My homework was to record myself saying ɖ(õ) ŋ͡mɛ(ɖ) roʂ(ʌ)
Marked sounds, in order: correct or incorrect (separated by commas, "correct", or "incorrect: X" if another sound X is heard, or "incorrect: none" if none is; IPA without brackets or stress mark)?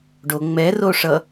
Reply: incorrect: o, incorrect: none, correct